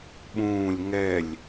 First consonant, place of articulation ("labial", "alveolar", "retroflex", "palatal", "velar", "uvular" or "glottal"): labial